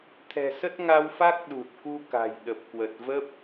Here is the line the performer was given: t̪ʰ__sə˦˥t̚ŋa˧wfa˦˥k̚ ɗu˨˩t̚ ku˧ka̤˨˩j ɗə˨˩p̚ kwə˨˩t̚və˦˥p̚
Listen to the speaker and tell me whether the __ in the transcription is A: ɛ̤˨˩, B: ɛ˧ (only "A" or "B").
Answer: A